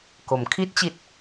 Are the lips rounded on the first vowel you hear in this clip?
yes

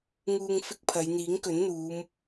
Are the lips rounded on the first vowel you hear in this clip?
yes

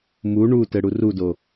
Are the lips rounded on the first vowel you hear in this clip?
yes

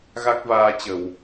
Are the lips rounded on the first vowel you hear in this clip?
no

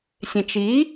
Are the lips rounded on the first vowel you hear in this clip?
no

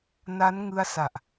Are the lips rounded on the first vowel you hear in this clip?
no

